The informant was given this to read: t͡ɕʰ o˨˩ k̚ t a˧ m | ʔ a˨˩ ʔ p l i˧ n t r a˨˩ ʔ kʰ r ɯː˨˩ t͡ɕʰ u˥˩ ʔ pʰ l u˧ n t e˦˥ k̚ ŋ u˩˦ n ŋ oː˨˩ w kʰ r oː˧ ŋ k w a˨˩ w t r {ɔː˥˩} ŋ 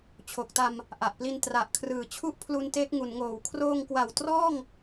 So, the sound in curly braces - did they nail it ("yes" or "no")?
yes